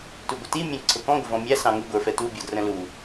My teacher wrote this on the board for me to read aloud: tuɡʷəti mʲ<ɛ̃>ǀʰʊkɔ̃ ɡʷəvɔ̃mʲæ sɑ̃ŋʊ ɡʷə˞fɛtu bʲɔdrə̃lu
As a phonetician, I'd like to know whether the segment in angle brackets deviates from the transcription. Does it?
no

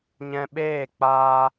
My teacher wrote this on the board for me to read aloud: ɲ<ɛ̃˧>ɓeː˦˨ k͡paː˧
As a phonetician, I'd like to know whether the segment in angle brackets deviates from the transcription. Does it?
no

